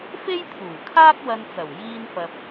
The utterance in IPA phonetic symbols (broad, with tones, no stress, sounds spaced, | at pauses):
f e˥ j t̪ʰ uː˨˩ kʰ aː˥ k̚ w ɐ˧ n t͡s ɐ˨˩ w j iː˥ n f ɐ˧ p̚